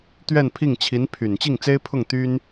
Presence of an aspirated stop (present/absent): present